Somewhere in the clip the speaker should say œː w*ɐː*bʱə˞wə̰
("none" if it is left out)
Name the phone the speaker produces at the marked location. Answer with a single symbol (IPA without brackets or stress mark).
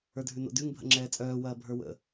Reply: ɐː